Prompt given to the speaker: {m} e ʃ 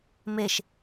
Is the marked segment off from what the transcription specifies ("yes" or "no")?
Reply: no